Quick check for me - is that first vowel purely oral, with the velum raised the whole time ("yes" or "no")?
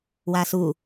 yes